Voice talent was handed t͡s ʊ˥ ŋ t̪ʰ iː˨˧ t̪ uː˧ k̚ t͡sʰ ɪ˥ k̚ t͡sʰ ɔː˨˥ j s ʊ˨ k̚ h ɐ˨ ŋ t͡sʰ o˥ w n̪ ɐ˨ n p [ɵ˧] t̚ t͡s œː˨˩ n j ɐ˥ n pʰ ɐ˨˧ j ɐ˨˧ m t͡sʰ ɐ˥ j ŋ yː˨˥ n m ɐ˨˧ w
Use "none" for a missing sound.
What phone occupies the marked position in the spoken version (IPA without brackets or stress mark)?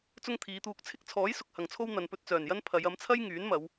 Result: ɵ˧